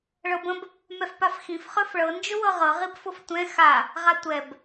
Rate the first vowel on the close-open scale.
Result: mid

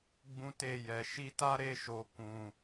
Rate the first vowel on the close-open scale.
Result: close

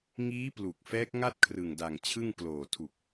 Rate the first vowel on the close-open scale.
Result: close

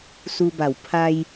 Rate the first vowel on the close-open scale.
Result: close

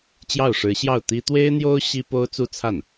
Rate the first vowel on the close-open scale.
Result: open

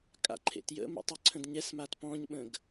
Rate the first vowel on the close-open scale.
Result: open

